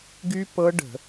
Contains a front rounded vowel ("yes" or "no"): yes